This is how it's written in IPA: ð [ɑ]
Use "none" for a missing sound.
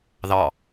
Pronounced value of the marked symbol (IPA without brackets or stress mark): ɑ